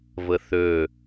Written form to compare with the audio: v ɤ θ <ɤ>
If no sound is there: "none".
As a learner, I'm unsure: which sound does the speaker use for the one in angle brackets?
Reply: ɵ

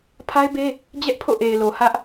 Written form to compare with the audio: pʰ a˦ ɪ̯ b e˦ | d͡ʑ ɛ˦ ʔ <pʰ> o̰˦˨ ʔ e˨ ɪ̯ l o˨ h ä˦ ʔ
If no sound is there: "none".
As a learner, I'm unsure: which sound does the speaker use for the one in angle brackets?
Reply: pʰ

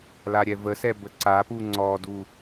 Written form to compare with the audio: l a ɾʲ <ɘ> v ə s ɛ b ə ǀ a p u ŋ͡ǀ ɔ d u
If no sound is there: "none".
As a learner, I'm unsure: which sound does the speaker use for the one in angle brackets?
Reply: ɛ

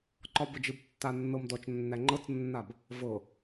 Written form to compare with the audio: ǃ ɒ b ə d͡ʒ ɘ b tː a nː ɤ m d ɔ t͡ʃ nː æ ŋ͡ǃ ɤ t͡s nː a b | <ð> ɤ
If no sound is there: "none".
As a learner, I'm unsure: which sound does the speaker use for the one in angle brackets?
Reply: v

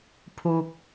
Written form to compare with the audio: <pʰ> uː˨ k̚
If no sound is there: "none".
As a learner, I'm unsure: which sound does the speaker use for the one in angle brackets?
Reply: pʰ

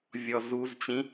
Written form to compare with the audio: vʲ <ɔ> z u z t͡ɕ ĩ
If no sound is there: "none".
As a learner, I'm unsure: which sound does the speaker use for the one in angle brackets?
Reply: ɔ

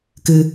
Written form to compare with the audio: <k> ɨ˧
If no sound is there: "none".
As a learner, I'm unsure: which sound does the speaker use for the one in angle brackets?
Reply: k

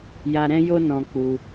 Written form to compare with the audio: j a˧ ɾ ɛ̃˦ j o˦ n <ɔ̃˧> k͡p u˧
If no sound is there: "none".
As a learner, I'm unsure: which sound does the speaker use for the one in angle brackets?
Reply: ɔ̃˧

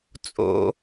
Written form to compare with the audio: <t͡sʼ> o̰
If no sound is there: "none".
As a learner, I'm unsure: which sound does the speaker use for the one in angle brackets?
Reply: t͡sʼ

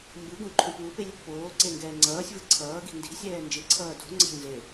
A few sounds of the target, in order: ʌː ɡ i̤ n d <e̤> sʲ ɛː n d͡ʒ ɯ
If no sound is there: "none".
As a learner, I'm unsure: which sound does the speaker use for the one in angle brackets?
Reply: i̤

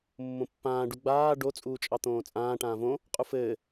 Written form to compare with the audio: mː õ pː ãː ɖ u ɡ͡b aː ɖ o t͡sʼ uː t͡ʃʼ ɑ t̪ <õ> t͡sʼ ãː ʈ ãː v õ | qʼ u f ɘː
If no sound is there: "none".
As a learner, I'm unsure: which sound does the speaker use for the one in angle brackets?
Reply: õː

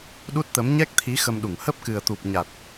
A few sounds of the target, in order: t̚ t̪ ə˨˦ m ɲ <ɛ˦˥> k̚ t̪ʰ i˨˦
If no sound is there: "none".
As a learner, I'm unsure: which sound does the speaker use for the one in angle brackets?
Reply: ɛ˦˥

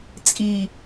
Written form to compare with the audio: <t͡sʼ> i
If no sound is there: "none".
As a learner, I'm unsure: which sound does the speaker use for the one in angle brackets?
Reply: t͡sʼ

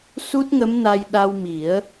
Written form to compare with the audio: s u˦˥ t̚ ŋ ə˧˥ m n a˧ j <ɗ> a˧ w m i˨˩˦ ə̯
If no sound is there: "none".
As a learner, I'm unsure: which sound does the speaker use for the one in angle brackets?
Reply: ɗ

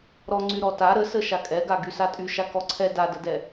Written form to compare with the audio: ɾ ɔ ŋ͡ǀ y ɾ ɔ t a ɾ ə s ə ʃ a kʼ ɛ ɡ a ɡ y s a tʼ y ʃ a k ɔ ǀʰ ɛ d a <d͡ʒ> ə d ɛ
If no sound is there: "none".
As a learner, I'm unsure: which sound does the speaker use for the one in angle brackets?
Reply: d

